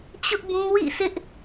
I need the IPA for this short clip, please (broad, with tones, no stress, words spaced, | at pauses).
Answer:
t͡ɕʊ˦ʔbũ˦ wḭ˦˨sɪ˦ʔ